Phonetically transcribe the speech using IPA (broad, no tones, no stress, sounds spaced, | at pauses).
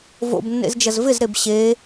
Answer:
v o̰ b nː ḛ z d͡ʒ ɐ z v ɪ z ɾ e b ɕ e